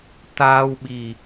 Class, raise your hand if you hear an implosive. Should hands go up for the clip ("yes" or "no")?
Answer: yes